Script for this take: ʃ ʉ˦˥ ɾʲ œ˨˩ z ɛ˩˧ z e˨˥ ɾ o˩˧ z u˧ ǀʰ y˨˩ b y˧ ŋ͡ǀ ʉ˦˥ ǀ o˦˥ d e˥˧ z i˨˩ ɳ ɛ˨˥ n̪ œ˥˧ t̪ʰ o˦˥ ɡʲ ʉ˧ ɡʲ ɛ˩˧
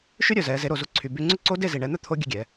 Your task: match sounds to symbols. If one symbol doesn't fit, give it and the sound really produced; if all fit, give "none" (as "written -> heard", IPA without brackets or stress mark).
none